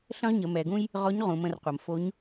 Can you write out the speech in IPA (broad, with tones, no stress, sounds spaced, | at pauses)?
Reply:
ɬ ə̃˥ ʁ ɲ ə˩˧ m ɛ˩˧ ɡ ũ˥ j | ʁ ɔ˧˥ ɲ ʁ ũ˩˧ m ə̃˩˧ r qʷ ɐ˩ m f o˧˥ ɲ